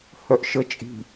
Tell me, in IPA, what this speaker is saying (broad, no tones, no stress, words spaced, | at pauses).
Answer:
hœʔʃə t͡ʃʼi̤